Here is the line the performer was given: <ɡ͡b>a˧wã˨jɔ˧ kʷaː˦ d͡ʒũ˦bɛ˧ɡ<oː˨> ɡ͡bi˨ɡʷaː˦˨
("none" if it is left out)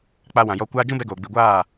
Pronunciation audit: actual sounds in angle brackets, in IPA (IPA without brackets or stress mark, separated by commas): k͡p, oː˨